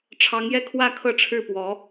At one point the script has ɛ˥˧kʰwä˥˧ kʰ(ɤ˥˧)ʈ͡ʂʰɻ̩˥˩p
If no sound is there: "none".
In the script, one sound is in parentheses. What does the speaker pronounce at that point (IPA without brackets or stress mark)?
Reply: ɤ˥˧